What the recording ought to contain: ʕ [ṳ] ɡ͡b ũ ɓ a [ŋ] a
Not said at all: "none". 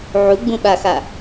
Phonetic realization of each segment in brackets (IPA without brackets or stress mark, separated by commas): u, x